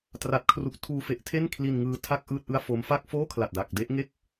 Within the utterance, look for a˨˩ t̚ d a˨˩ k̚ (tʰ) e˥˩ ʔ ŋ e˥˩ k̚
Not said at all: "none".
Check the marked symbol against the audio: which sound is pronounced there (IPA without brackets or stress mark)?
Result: d